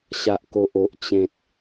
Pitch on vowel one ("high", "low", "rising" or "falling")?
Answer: low